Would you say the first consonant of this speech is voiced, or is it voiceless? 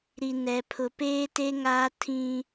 voiced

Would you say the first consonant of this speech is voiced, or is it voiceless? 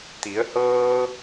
voiceless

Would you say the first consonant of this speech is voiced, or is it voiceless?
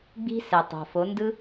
voiced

